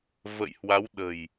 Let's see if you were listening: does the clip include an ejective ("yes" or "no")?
no